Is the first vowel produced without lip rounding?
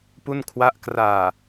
no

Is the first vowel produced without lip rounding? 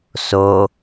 no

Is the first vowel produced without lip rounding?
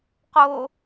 no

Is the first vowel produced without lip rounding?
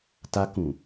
yes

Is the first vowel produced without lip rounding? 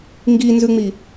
yes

